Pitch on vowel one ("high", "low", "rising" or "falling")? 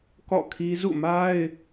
falling